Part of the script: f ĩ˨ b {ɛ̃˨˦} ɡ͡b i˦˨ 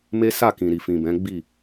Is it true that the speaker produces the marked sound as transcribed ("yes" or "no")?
yes